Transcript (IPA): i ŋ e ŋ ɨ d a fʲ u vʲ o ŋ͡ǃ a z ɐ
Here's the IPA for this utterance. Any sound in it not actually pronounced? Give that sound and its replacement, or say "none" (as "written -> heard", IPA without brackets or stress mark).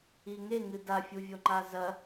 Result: none